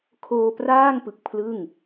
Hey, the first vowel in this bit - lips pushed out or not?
yes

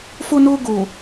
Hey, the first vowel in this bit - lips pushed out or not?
yes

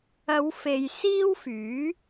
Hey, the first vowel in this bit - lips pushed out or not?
no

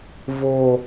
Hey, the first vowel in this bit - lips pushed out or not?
yes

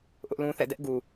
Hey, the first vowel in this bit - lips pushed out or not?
yes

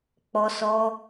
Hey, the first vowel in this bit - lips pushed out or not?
yes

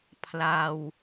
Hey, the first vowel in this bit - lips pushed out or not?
no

